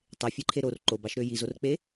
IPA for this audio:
tˤ e fʲ e ǃʰ e ɾ o r ǃ o b ɑ ʃ ɾ ø j i z o r k͡p e

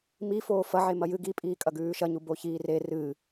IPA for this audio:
m i f oː f ɐ ʕ e m ɐ j ɨ ɡ i pʼ iː kʼ ɐ ɡ ʉː ʃ ɐ ɲ u b o ç iː r e r ɨ

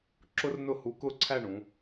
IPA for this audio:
ǁ ʊ˥ r n ʊ˥˧ h u˧ k ʊ˥˧ ǀʰ æ˥˧ ɳ ũ˩˧

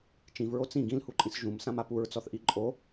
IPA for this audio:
t͡ʃ ĩ v ɹ o t͡s ĩ ɡ ĩ l h u ǃʼ ĩ s ʒ ũ m s ã m a p u ɹ t͡s ɔ θ ʔ i ǃʼ o

